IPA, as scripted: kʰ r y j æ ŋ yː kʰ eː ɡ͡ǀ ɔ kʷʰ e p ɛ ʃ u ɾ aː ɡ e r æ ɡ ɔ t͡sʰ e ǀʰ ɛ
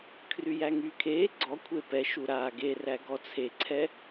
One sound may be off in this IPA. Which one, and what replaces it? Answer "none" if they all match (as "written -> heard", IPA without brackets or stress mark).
none